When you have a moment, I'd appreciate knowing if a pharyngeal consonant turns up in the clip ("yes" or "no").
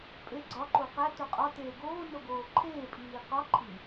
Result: no